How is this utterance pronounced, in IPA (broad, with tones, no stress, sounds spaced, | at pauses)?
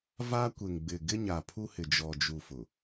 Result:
v a˦ kʷ e˨ ŋ ɡ͡b ɪ˨ ɡ ɪ˦ ɲ a˨ pʰ u˦ h ɪ˨ d͡ʒ ɔ˨ d͡ʒ u˨ f ʊ˨